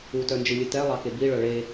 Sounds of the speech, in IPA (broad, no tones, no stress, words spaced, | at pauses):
utœnd͡ʒɨlʲɨ tɛlˠɑke biɭœ ɭe